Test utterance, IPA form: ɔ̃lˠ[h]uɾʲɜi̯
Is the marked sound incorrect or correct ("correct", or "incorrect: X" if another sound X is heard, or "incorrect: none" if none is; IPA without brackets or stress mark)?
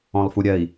incorrect: f